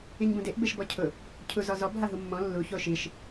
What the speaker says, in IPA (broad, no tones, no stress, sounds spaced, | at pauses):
i ɲ b ũ d e ʔ b e ʃ b ɔ cʰ ʊ | cʰ u z ɔ z ɔ b ɦ a ɦ u mː ɔ̃ lː u ç o ʃ i ʃ